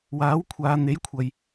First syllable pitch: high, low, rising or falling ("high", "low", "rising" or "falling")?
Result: rising